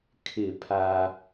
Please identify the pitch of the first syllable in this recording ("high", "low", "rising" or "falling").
falling